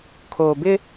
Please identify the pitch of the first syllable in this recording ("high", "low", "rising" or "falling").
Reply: low